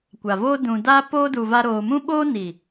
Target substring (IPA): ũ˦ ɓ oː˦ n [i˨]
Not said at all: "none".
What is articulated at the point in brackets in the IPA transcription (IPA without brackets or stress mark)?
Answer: i˨